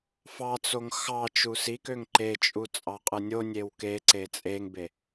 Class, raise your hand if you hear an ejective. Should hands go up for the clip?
yes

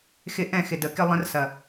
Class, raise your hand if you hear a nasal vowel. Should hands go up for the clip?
yes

